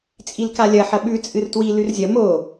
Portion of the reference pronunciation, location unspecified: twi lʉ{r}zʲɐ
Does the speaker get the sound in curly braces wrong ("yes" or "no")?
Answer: no